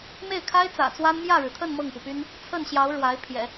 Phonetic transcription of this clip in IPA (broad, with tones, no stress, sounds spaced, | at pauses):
m e˥˩ ɪ̯ kʰ a˥ ɪ̯ t͡s ä̰˨˩ t͡s w a˥ n m j ä˥˩ ɻ ɻ̩˩ t̪ʰ ə˥˧ n m ɤ˥˩ ŋ p u˩ p y˥ n | t͡sʰ ə˥˩ n ɕ j ɑ˧˥ ʊ̯ ɻ w a˧˥ ɪ̯ pʰ j ɛ̰˨˩˦